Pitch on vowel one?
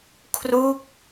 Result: falling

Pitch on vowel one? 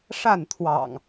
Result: falling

